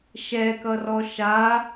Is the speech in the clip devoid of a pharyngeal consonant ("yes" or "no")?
yes